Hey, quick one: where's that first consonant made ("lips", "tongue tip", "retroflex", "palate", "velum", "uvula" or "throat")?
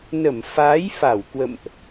tongue tip